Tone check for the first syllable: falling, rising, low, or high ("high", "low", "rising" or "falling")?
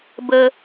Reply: low